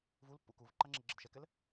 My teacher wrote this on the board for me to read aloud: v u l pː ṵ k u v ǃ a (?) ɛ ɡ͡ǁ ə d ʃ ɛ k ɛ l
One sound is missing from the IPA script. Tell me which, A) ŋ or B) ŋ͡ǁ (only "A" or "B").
B